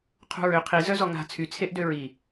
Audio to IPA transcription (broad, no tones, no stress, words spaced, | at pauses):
qʰṳɹø qʰi zœzɔŋa̤ t͡sʰy t͡sʰeʔdøɹi